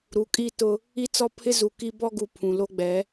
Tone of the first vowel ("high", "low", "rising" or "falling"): rising